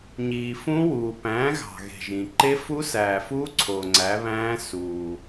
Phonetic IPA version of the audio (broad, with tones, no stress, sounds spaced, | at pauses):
ɲ iː˨ f ũ˦˥ w uː˨ p æ̃ː˨˥ ɣ ɑ̤˨ ɣ e̤˨ ʒ ĩ˨ ǃ e˦˥ f u˦˥ s æː˨ f uː˦˥ ǀʰ o˨ ŋ͡ǀ æ˨˥ β æ̃ː˦˥ s uː˨